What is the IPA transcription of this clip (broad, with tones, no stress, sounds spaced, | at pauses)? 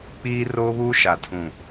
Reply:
k͡p iː˦ r oː˦ β uː˦ ʃ a˨ tʰ ũ˨